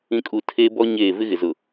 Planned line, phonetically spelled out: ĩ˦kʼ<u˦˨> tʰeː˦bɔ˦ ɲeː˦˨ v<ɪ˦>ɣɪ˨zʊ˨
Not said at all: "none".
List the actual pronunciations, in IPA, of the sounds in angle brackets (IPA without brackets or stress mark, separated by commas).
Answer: u˦˨, ɪ˦